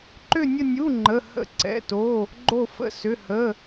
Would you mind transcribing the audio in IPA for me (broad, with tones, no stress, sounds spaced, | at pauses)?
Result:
ǃ ʏ˥˧ nʲ ə˥˧ nʲ u˧˥˧ ŋ͡ǃ ə˧˥˧ h ə̰˥˧ ǀ ɛ̰˧˥˧ t o˧˥˧ | ɡ͡ǃ o˥˧ f ə̰˧˥˧ s ʏ˧˥˧ h ə˧˥˧